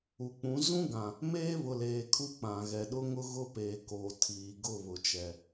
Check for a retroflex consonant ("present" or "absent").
absent